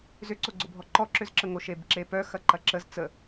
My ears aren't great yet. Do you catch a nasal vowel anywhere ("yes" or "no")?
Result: no